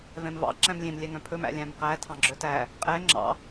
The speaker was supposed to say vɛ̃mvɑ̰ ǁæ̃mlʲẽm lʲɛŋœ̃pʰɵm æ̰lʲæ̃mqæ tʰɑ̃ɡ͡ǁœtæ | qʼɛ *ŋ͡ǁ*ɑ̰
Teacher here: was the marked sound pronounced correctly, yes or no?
yes